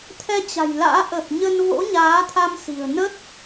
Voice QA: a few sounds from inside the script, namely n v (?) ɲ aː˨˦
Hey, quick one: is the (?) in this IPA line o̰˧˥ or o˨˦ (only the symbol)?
o̰˧˥